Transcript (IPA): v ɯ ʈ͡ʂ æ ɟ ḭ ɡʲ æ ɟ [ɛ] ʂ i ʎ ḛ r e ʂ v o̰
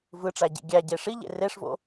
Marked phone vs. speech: incorrect: e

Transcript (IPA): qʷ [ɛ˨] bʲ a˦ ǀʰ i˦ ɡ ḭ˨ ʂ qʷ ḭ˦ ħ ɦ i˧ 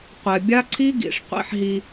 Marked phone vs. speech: correct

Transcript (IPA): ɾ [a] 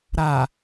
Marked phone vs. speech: correct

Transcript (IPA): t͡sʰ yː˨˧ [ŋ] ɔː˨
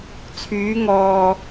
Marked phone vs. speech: correct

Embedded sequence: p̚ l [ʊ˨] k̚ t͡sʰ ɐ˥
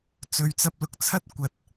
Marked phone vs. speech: correct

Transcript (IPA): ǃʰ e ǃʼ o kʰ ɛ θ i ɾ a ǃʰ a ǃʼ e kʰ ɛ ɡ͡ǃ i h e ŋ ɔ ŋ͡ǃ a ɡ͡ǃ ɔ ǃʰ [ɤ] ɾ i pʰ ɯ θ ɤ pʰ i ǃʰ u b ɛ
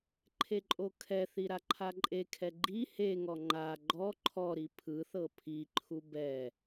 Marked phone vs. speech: incorrect: ɔ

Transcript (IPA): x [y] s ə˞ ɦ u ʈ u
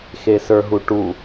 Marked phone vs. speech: incorrect: e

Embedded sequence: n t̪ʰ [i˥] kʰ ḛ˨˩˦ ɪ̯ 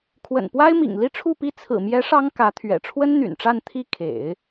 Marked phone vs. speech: incorrect: i˥˩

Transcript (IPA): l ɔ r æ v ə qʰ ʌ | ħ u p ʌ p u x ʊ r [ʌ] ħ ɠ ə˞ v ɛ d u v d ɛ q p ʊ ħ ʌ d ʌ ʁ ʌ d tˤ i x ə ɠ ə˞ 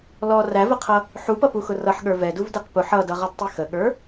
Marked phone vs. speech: correct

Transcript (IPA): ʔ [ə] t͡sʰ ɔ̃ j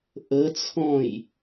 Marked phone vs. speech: correct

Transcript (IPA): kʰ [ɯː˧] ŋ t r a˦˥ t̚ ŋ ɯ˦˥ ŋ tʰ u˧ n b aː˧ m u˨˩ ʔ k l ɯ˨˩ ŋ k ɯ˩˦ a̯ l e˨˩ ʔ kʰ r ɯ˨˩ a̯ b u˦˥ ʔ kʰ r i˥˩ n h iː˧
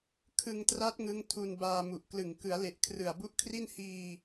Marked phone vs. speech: incorrect: ɯ˧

